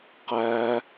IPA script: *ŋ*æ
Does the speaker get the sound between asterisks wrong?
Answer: yes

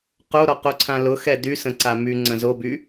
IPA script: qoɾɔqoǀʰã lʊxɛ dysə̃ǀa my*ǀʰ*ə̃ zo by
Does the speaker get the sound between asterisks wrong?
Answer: yes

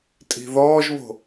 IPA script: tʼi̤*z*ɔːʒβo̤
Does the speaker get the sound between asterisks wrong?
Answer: yes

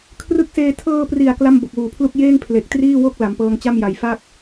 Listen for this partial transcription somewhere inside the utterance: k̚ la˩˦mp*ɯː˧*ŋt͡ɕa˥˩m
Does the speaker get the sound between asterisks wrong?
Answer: yes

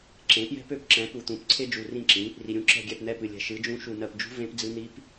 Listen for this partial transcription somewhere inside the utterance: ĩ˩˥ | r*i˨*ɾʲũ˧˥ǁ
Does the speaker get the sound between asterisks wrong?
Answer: no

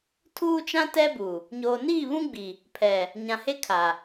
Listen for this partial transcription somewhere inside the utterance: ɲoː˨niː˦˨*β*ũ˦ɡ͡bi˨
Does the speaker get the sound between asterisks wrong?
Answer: no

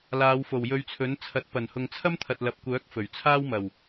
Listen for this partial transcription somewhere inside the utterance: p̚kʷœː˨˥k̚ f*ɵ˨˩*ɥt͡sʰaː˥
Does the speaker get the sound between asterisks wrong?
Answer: no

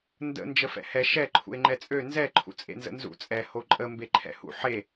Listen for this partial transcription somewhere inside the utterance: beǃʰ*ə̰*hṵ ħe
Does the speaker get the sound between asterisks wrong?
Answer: yes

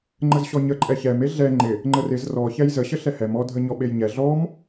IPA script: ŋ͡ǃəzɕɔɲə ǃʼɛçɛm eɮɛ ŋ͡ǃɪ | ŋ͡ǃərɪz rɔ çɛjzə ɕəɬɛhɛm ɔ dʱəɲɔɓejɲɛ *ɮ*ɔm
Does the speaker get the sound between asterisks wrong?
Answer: no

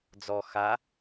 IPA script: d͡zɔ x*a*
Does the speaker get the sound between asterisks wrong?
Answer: no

